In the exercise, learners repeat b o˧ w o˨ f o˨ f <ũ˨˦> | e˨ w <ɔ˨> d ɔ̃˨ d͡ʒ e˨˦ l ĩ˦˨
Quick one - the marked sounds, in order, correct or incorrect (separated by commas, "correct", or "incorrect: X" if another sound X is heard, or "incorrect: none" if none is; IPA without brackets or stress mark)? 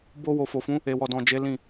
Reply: correct, correct